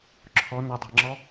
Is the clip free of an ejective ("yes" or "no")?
yes